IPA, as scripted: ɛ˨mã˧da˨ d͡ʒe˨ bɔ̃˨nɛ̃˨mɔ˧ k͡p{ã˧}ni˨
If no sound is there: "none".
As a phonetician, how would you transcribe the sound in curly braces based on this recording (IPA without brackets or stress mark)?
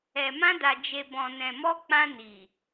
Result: ã˧